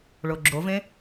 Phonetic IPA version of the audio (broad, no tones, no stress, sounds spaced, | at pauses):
ɭ o ɡ͡ǁ o v ẽ